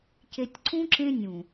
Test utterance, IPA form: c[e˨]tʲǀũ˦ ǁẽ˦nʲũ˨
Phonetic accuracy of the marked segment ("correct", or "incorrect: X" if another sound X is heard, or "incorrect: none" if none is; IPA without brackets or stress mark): correct